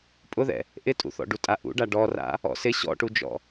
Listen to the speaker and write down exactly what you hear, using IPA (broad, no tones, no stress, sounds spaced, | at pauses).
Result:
pʼ ʊ ð ɛ̰ | ʔ ɪ tʼ ṵ θ ɔ̰ ɖ u tʼ a ʔ ṵ ɖ a ɖ ɔ r a̰ | ɔ̰ s ɪ ɕ ɔ̰ ʈ u d͡ʒ ɔ̰